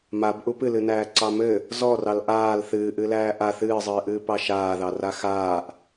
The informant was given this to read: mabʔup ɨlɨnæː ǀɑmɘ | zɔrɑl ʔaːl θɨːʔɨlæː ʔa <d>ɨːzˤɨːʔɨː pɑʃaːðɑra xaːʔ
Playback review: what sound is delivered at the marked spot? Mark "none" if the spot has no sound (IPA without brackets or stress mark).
θ